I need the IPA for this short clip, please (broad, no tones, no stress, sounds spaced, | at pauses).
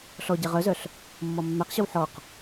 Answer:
ɬ ɔ ɟ ɛ ʁ œ z œ ɬ | mː ɔ mː æ q ɕ œ w ħ ɔ q